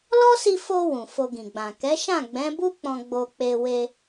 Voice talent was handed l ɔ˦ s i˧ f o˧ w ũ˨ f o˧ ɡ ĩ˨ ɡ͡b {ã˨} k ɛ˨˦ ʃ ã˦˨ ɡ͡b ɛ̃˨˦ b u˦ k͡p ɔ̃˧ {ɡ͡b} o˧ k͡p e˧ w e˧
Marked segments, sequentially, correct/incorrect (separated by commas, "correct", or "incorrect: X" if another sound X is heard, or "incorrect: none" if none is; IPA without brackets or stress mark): correct, correct